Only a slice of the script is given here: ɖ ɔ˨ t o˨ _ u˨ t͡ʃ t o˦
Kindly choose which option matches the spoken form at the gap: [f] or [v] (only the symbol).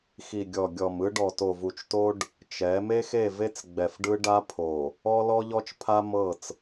v